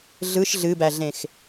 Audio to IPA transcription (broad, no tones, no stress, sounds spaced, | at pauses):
ɮ ɯ ʃ ɮ ɨ b æ ɮ ẽ x